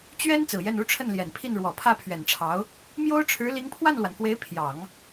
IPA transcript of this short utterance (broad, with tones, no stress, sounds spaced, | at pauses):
t͡ɕ ɥ ɛ˥ n t͡s ɹ̩˨˩ j ɛ˥˩ n u˥ ʈ͡ʂʰ ə˥˩ n l j ɛ˨˩ n pʰ i˥˩ n ɻ w ɔ˨˩ pʰ ä˥˩ pʰ ɥ ɛ˨˩ n ʈ͡ʂʰ ɑ˧˥ ʊ̯ | m j o˥ ʊ̯ ʈ͡ʂʰ ɻ̩˧˥ l i˧˥ ŋ pʰ w a˥˩ n l w a˩ n k w e˧˥ ɪ̯ pʰ j ɑ˨˩˦ ŋ